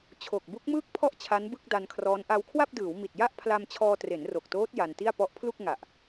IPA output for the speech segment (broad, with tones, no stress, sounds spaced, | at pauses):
t͡ɕʰ o˨˩ k̚ b u˦˥ k̚ m ɯː˥˩ k̚ pʰ ɔ˥˩ ʔ t͡ɕʰ a˦˥ n b ɯ˥˩ k̚ d a˧ n kʰ r ɔː˦˥ n ʔ a˧ w kʰ w a˥˩ p̚ d ɯː˩˦ w m i˨˩ t̚ j a˥˩ ʔ pʰ l a˧ m t͡ɕʰ ɔː˧ t r e˩˦ n r o˨˩ k̚ t oː˦˥ t̚ j a˧ n t i˥˩ a̯ p ɔ˦˥ ʔ pʰ l u˥˩ k̚ ŋ a˨˩ ʔ